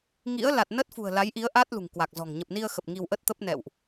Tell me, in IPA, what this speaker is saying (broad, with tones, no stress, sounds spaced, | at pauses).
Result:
ŋ ḭ˧˥ ə̯ l a˨˩ t̚ n ə˦˥ t̚ f ṳ˨˩ ə̯ l a˨˦ j ʔ i˨˦ ə̯ ʔ a˦˥ t̚ l ṳ˨˩ ŋ k w a˨˩ k̚ z ɔ̤˨˩ ŋ ɲ ə˨˩ p̚ n i˧ ə̯ x ə˨˩ p̚ ŋ i˧ w ʔ ə˦˥ t̚ t̪ ə˦˥ p̚ n ɛ̰˧˨ w ʔ